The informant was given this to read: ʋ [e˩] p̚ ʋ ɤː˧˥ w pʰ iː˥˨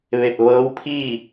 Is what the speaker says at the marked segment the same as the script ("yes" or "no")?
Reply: no